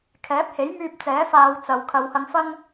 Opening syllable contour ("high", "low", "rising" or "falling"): rising